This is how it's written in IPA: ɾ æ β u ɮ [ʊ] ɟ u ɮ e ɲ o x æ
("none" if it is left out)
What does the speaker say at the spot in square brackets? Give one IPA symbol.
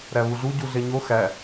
u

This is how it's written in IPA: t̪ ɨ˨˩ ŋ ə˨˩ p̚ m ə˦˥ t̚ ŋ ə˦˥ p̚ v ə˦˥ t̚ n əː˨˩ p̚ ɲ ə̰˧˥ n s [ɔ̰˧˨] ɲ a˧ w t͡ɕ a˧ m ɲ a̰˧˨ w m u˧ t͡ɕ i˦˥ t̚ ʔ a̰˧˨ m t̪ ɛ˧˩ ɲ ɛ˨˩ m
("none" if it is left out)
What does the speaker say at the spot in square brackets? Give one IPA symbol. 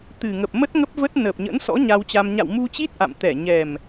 ɔ̰˧˥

